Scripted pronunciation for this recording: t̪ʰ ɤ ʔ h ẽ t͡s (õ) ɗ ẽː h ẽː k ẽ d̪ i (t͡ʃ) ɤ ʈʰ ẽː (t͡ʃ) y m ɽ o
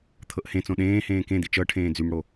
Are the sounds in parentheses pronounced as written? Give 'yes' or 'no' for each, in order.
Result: yes, yes, no

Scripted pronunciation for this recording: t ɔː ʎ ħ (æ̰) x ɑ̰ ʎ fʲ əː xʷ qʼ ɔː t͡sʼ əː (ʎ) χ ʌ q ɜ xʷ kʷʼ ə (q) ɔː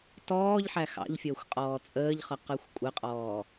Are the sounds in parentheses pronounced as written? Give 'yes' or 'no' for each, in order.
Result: no, yes, no

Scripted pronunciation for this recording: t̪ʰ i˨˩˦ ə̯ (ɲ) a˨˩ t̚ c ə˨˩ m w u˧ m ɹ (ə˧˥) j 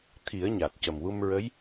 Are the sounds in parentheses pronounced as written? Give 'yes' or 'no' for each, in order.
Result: yes, yes

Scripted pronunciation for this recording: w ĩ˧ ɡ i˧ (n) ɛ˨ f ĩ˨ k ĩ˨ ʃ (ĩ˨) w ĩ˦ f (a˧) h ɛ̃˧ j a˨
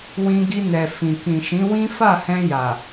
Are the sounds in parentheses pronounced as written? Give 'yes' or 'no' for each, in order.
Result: yes, no, no

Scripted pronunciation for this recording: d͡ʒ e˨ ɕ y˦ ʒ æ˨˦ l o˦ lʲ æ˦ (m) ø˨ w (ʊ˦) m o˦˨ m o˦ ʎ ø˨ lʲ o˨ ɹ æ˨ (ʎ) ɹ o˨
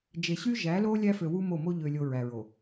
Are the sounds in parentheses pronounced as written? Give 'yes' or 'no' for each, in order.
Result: no, no, no

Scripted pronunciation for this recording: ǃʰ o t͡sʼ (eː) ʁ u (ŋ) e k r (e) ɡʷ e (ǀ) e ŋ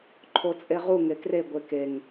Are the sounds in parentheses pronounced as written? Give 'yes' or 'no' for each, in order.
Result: no, yes, yes, no

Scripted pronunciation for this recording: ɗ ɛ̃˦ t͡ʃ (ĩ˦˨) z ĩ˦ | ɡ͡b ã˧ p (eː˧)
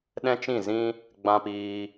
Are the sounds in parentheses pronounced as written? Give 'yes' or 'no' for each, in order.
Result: yes, no

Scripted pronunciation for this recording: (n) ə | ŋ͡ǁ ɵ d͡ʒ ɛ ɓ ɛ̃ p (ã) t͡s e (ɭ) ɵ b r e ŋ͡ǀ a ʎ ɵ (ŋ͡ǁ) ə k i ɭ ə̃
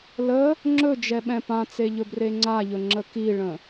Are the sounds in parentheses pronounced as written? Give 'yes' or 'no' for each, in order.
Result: no, yes, no, yes

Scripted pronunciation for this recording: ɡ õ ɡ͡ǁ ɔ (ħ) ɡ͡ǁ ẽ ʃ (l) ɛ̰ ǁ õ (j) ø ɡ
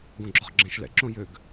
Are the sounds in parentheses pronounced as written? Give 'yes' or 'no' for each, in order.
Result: no, yes, yes

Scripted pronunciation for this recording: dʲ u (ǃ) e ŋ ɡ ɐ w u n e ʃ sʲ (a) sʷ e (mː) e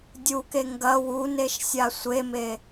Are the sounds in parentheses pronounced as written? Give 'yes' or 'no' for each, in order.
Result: no, yes, no

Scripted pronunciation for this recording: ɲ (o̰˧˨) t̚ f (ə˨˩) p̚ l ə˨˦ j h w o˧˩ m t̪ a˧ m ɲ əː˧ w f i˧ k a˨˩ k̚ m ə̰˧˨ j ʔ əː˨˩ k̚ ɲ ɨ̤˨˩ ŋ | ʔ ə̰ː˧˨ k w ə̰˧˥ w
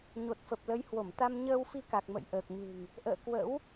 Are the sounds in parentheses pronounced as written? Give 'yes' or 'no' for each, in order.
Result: no, yes

